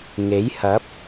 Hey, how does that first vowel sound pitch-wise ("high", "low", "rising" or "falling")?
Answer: rising